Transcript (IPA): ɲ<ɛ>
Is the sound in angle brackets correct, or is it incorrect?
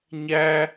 incorrect: æ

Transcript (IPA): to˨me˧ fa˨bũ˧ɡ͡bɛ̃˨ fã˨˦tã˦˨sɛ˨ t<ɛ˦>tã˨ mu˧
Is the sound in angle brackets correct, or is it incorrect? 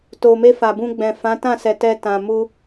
incorrect: ɛ˧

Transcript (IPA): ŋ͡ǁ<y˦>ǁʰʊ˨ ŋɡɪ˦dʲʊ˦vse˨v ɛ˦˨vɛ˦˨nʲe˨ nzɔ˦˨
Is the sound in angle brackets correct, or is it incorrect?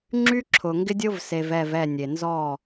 correct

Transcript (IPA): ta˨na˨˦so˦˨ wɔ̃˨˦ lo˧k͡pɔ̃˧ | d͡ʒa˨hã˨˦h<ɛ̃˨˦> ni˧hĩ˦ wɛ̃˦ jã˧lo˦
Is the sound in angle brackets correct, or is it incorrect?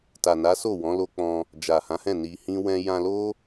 incorrect: ɛ̃˦˨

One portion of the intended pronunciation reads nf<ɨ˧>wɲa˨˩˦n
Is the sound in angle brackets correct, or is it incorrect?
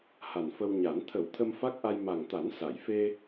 incorrect: ə˧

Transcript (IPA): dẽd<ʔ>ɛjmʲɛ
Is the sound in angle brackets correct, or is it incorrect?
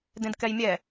incorrect: k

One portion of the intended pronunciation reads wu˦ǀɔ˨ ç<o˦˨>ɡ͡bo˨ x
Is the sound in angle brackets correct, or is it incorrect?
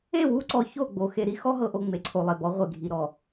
correct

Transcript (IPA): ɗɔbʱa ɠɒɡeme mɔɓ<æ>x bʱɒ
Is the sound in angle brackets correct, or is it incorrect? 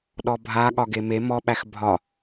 correct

